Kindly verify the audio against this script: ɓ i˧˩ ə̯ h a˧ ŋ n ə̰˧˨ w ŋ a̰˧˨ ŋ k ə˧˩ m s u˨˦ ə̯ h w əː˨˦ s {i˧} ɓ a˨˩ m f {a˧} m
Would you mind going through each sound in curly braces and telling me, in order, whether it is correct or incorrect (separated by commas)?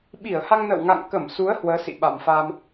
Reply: incorrect, correct